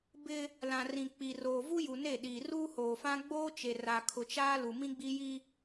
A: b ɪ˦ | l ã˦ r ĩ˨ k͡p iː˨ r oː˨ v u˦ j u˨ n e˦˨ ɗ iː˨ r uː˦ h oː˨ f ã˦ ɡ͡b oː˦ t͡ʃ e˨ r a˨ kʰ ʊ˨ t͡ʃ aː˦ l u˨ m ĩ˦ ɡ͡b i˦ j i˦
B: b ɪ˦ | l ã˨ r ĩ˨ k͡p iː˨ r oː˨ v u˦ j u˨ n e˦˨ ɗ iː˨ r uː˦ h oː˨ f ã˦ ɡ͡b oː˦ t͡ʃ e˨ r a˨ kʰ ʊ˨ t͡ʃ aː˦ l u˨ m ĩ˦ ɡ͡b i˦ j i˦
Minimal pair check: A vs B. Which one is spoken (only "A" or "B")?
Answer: B